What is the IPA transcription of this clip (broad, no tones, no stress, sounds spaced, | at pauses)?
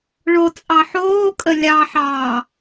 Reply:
ɭ o t͡sʼ ɑ ħ oː kʼ ə lʲ ɑ ħ ɑː